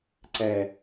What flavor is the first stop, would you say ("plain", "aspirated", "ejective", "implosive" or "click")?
click